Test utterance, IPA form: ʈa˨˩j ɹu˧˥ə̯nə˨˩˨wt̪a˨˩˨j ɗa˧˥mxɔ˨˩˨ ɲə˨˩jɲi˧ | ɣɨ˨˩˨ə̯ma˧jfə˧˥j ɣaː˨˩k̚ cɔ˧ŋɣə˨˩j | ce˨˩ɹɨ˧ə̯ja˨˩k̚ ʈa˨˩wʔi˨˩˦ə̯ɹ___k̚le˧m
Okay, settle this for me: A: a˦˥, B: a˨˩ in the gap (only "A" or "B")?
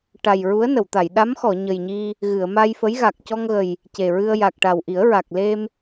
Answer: B